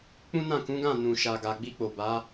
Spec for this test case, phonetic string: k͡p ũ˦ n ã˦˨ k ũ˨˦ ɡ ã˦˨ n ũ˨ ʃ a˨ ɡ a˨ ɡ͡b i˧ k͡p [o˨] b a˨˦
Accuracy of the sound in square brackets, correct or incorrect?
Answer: correct